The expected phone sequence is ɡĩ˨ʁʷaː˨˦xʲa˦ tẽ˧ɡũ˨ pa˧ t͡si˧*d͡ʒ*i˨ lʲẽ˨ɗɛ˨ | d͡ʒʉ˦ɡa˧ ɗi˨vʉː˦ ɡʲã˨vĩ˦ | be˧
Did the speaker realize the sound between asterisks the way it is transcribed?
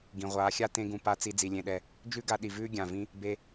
no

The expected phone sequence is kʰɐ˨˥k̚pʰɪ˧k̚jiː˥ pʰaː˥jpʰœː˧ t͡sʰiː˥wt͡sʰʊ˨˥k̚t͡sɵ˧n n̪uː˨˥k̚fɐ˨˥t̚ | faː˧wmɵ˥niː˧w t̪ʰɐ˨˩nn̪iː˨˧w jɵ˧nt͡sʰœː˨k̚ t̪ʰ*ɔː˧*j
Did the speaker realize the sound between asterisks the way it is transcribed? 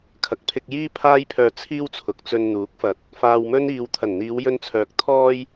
yes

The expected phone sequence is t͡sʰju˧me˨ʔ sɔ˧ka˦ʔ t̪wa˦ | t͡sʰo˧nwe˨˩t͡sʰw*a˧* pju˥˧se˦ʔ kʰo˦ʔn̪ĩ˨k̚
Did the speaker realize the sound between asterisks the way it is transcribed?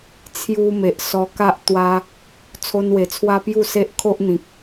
no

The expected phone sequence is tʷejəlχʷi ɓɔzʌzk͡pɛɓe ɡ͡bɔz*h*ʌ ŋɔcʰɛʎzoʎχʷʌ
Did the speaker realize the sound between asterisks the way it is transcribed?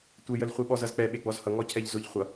yes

